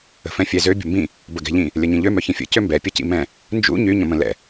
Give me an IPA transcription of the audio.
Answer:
ə̤ f ɛ̃ fʲ ɛ z ø bʲ ə̤ m b ĩ | b ə ɡ ɛ̤ ʎ ĩ | lʲ ɐ ɲ ĩ ʎ ø m œ ç ĩ fʲ ə̰ c ø m b ɛ pʲ ɐ c ḭ m ɛ̃ | n d͡ʒ ṵ ɲ y ɲ ə̃ m ə̃ l ɛ̰

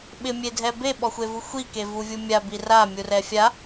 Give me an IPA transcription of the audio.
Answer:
ɓ ɪ mʲ e dʱ ɛ b e ɓ ɔ xʷ e v u xʷ i k e v u vʲ u mʲ a b i r a mʲ u r ɛ fʲ a

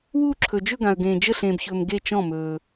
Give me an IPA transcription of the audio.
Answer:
w uː˥˧ ǁʰ ɵ˨ d͡ʒ ɵ˥˧ ɡ ã˨ ə̯ ɡ ẽː˨ d͡ʒ ə˥˩ ɬ ẽː˨ b ç ɵː˨ m ɡ e˥˩ t͡ʃ ɔ̃˥˩ m ɵː˨

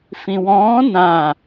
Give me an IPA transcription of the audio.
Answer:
f ĩ w ɔ̃ː n ã

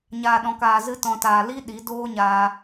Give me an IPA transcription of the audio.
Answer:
ɲ aː˨ ɗ ɔ̃˨ k aː˨ z ɨ˧ t ɔ̃˨ t aː˨ l i˦ ɗ i˨˦ d oː˦ ɲ aː˧

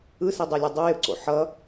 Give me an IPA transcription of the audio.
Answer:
ɯ s i dˤ ɛ lʲ ʌ dˤ ʌ j ɯ ǀ o̰ ħ ʌ

